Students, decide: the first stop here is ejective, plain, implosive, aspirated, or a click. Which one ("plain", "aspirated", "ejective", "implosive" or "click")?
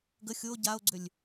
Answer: plain